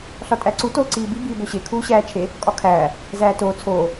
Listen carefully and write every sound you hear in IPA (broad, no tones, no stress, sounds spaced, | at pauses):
ɬ ɒ tʼ æ ǀ u t oː ǀ iː b i b iː b o ɕ e kʰ uː ɕ æː t͡ʃʰ e | kʼ ɒ kʰ æː | z æː t oː t͡sʰ oː